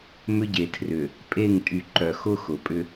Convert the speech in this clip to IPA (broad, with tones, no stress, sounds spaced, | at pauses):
m ʏ˦ ɟ e˨ tʰ r ʏ˨ | pʼ e˦˨ ŋ tʼ y˨ ǃ œ˨ x ʊ˦ x ʊ˨ pʼ ʏ˦